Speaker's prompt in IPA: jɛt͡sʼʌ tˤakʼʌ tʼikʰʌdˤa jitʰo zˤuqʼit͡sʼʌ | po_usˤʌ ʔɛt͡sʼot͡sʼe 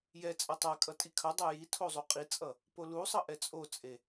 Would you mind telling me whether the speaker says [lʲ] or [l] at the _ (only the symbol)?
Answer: l